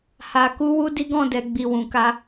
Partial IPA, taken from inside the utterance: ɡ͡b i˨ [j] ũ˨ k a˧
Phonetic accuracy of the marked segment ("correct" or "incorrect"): incorrect